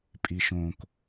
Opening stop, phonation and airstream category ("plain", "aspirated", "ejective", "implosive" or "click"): ejective